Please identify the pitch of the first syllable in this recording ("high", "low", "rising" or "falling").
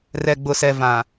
low